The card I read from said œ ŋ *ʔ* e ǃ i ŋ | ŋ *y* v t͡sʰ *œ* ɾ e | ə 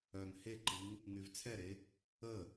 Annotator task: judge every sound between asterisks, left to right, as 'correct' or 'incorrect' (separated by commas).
incorrect, correct, incorrect